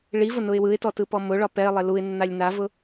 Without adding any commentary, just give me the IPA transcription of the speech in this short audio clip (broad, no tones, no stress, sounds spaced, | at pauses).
ɭ i v ʊ n ʊ ɪ̯ w ɯ ɪ̯ t ɔ t ɯ p ɔ m ʊ ɭ ɒ p ɛ ɪ̯ lˠ e l u ɪ̯ nː a lʲ n a v ʊ